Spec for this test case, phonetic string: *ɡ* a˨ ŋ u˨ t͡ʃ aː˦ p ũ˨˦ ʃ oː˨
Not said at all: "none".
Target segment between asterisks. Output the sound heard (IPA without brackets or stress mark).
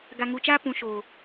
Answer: ɡ